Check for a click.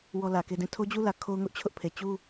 absent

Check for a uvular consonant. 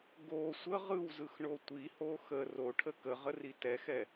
present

